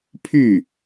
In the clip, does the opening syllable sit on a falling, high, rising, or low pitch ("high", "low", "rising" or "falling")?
falling